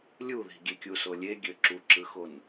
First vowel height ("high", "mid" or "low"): high